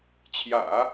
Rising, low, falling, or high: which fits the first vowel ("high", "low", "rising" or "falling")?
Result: low